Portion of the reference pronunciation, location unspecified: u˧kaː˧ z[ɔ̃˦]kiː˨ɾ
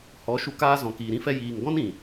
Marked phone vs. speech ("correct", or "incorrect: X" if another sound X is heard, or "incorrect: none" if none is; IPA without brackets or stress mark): incorrect: ɔ̃˨